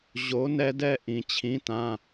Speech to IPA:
ʑ o˨˥ n ɛ˦ d ɛ˦ ʔ ĩ˩ t͡ɕʰ ĩ˨˥ t ã˩˧˩

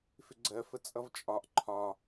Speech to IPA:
f ɪ ɡ͡ǀ ɜ f ə t͡sʼ ʌ v t͡ʃʼ ɒ ʔ ǃʰ ɒ

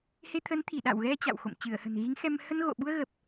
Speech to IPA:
h e˧ t̪ʰ ə˨˦ n t̪ʰ i˧˩ ɗ a̰˧˨ w ɣ ɛ˧ t͡ɕ a̰˧˨ w x o̰˧˨ m t͡ɕ ɨ˧˩ ə̯ h ə̤˨˩ n ɣ i˨˦ ŋ x ɛ˧ m h ə˧ n ɣ o̰˧˨ ɓ u˧ ə̯ ɣ ə˨˩ p̚

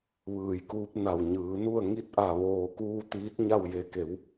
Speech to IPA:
ʋ ɯː˧˩ j k uː˧˥ p̚ n a˧˩ w ɲ ɯː˩˧ n u˥˨ ə̯ ŋ i˧˥ t̚ ʔ a˧˩ ʋ oː˧˩ k uː˧ t̪ iː˧˥ t̚ ɲ a˥˨ w j e˧ k e˩˧ w

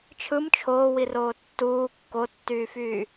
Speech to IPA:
t͡ʃʰ ɯ m t͡ʃʰ oː w i r oː tː uː kː o tː yː f yː

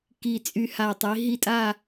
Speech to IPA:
k i˧˩ t͡sʼ y˧˩ h a˧˩ tˤ i˨˦ ɦ i˥˧ tʼ a˥˧

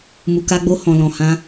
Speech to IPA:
m u˨ k a˧ ɡ͡b o˧ h ɔ̃˨ l ɔ̃˨ h ã˧

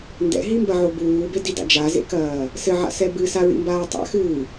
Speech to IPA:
n d ɛ̰ ɦ i m b ɐ ʕ o b uː b e d i d a̰ d͡ʒ a z ḛ k ɐː | s ɘ ʕ a̰ s ɛ b ɨ s a ɹ ḭ m b aː tˤ a̰ x ɨː

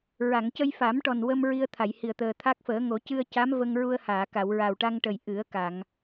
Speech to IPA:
ɹ a˨˩˨ ŋ c ə˧ j f a˨˩˦ m ʈ ɔ˨˩ n w ə˧ m ɹ i˧ ə̯ t̪ʰ a˨˩˨ j h i˨˩ ə̯ t̪ əː˨˩ t̪ʰ a˦˥ k̚ f əː˨˩˦ ŋ o˨˩˦ c ɨ˧ ə̯ c a˧˥ m v ə˧ ŋ ɹ u˧ ə̯ h aː˨˩˨ k a˨˩˨ w ɹ a˨˩ w ʈ a˧ ŋ ʈ ə˨˩ j ʔ ɨ˨˩˦ ə̯ k a˨˩˨ ŋ

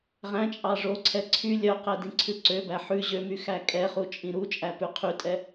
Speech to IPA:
ʁ æ̃ t͡ʃʼ ɑ ʐ o ǀʰ ɛ ǀʰ y lʲ œ q ɛ d ĩ ǀʰ ʉ ǀ ø b æ ħ ʉ ʑ ø m y x æ kʼ ɛ χ u t͡ʃʼ ĩ ɾ u t͡ʃʼ æ p ʉ qʰ y tʼ ɛ

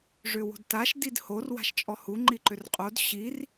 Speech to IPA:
ʐ ʏ w o̤ d t a ʃ d i d h o r w a̤ ʃ t͡ʃʼ ɔ h u ŋ͡ǃ i ǃ ʏ r qʼ o d ɕ i r

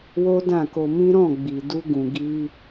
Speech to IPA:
w o˦ d ã˦˨ k o˧ m ĩ˦ ɾ ɔ̃˦˨ ɡ͡b i˨ d u˧ ɡ ũ˨ ɡ i˧

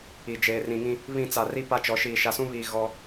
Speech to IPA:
i˨ d͡ʒ eː˨ r ĩ˨ ŋ ĩ˦ | β ĩ˦˨ t͡s a˨ r i˦ p a˦ t͡ʃ ɔ˨˦ ʃ iː˨ ʃ a˨ s ũ˦ β iː˨ ɣ ɔ˦

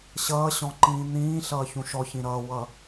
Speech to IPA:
ɕ ʌː ɕ ɔ̃ ǃ ĩː n̪ ĩː ɬ ʌː ç ũ ʃ ɔ ç ĩ ɾ ʌː w ʌ

